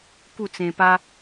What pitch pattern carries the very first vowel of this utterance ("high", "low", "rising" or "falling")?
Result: falling